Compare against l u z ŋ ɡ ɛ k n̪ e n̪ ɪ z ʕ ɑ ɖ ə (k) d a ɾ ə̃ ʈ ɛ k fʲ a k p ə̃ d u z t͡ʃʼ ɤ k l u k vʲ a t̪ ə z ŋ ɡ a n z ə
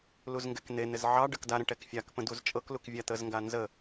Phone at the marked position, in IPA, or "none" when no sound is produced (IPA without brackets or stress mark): k